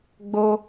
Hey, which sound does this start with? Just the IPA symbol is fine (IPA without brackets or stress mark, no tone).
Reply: ɡ͡b